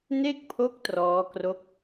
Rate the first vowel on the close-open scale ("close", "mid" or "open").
mid